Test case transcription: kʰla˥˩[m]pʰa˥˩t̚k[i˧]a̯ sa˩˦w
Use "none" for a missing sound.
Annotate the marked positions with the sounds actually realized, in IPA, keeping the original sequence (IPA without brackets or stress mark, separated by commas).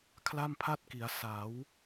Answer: m, i˩˦